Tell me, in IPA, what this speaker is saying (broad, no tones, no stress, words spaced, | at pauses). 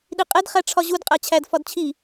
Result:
ɗiqʼed χæʈ͡ʂʰɒʑud qʼæt͡ɕʰæd fɒdt͡ɕʰi